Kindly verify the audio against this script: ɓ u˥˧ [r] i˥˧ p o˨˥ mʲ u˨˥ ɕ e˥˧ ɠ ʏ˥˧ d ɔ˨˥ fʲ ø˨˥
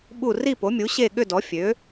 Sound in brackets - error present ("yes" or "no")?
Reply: no